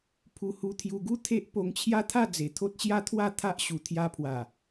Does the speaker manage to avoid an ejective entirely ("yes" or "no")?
yes